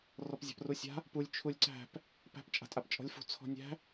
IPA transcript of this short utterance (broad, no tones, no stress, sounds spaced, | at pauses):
r ɔ p zʲ a̤ p r u sʲ a̤ | p u lʲ t͡ʃʰ u lʲ ǀ æ̤ p | p æ̤ p t͡ʃʼ a̤ tʼ a p t͡ʃʼ ɔ̤ lʲ f ṳ t͡sʰ ɔ̤ nʲ æ̤